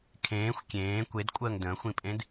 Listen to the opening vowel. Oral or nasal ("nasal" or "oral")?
nasal